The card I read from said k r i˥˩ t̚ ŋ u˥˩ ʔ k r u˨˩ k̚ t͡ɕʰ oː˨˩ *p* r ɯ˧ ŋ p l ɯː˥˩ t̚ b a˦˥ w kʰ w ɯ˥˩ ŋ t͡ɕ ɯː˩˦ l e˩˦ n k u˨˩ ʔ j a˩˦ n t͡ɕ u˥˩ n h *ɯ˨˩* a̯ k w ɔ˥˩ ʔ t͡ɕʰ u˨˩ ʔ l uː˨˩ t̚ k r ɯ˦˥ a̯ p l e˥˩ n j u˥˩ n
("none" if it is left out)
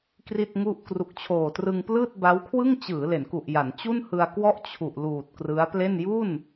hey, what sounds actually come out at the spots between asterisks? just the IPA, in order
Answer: t, ɯ˧

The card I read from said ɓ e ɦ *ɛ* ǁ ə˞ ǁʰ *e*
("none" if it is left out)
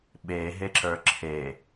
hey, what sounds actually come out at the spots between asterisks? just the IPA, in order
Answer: e, e

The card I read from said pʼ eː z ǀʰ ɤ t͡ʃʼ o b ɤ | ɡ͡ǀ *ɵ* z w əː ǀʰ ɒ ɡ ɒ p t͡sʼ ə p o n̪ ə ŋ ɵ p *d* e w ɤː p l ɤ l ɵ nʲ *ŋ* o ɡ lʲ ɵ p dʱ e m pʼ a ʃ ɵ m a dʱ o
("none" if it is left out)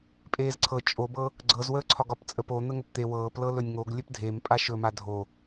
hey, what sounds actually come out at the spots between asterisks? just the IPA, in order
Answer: ɤ, t̪, ŋ

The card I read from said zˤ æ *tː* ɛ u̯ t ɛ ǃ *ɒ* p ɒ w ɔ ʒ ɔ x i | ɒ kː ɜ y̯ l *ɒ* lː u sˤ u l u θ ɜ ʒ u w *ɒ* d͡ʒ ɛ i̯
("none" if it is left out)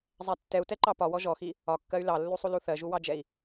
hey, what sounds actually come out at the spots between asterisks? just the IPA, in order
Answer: tː, ɑ, ɑ, ɑ

